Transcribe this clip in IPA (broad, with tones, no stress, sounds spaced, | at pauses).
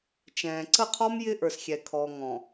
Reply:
t͡ʃ ɛ̃ː˨ ǀ ə˦˨ qʰ ɔ˦ m j ɪ˦ ʔ ə˞˨ s xʲ ɛ˨ kʰ ɔ˨ ŋ ɔ̃˨